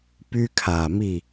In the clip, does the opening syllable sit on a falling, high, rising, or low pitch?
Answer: high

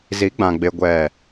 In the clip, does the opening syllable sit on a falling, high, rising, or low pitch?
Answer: rising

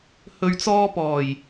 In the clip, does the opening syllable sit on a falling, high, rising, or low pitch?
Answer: low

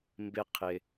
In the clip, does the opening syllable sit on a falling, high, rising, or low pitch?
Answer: high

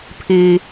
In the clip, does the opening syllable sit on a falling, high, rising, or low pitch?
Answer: low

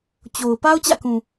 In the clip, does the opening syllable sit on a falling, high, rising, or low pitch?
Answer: low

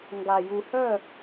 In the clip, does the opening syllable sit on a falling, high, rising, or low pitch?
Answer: low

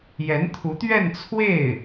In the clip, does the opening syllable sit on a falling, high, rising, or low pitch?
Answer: rising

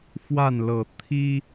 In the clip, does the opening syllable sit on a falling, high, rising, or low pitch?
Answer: falling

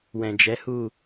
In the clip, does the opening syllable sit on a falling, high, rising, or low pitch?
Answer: low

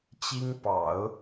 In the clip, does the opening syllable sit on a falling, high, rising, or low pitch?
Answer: high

